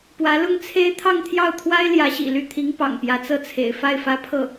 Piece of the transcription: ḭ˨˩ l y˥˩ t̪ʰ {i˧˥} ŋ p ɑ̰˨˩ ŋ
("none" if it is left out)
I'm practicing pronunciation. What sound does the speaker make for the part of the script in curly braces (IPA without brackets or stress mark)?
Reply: i˧˥